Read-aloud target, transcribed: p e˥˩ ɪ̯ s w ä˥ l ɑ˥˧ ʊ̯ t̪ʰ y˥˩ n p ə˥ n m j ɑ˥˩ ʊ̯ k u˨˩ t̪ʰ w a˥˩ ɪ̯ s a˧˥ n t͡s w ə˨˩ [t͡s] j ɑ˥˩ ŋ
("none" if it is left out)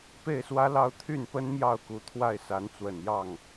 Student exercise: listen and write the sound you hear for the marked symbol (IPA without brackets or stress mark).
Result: n